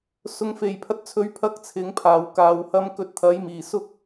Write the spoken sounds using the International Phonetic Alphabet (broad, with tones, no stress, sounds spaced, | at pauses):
s ʊ˥ ŋ f e˧ j pʰ ɐ˥ t̚ t͡sʰ ɵ˥ ɥ pʰ ɐ˥ k̚ t͡sʰ ɪ˨˥ ŋ pʰ aː˨ w k aː˧ w h ɐ˥ m k ɵ˧ t̚ t̪ʰ ɐ˨˥ j m iː˨˩ s ʊ˥ k̚